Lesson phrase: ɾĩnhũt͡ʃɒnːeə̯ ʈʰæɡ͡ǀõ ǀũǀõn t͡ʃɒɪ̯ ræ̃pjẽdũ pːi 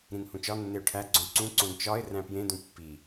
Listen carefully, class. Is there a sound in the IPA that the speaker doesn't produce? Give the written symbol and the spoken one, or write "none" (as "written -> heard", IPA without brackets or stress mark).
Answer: ə̯ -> ʊ̯